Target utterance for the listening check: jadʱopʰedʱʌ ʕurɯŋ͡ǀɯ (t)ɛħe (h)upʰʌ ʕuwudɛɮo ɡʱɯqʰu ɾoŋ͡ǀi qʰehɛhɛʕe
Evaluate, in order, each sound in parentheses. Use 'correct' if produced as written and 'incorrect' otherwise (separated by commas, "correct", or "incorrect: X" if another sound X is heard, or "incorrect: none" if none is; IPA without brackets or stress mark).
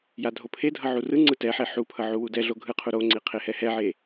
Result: correct, incorrect: ħ